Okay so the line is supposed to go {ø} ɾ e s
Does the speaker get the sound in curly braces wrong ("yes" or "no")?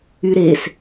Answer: yes